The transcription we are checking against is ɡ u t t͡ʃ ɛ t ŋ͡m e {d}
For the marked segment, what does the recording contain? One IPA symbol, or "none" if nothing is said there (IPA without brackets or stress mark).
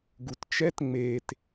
t